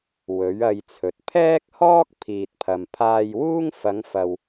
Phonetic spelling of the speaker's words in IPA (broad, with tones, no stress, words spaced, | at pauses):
wɵ˨˥ɥɐ˧jt͡sʰɵ˨t̚ pʰɛː˥k̚hɔː˥k̚ pʰiː˨t̚pʰɐ˨mpʰaː˧jwuː˥ŋ fɐ˨˧ŋfɐ˨w